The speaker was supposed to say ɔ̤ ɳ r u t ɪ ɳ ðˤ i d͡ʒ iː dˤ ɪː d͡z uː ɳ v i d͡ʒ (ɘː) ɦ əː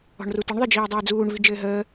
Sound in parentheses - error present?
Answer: no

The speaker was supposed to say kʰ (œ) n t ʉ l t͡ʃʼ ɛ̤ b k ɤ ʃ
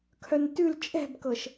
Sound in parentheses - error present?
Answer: no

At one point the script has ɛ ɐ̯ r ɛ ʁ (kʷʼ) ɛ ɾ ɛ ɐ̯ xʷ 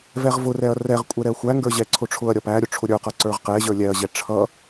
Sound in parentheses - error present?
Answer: no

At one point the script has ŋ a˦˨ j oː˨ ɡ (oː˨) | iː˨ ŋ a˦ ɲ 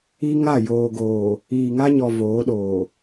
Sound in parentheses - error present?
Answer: no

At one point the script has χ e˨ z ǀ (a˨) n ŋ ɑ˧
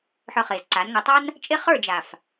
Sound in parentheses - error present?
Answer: yes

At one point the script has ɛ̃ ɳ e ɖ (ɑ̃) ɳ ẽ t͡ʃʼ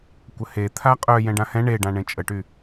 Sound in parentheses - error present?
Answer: yes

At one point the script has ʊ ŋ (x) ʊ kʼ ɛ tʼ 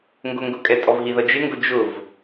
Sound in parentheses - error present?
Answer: yes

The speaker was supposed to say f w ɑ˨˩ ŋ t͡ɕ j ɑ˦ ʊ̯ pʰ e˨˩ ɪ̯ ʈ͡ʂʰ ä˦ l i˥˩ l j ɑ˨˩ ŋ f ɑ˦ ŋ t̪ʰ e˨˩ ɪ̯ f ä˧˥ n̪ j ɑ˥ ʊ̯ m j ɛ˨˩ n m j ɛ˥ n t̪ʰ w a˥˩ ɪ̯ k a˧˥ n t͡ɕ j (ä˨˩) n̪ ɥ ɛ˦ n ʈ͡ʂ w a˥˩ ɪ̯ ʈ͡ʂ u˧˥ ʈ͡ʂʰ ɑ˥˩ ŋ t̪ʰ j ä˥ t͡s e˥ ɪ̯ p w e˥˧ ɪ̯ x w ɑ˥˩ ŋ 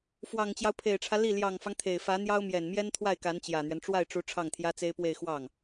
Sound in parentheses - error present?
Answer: no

